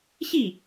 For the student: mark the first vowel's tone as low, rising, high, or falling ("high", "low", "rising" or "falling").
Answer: falling